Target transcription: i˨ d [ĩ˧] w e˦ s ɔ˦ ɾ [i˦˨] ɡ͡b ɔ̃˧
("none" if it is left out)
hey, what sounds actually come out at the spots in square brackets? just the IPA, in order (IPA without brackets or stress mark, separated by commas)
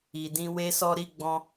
ĩ˧, i˦˨